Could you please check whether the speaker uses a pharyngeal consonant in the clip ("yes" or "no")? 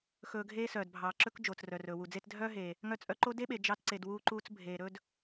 no